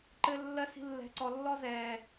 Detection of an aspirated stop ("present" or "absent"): absent